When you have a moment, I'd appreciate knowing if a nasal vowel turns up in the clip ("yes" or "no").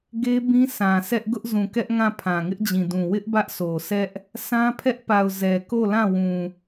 yes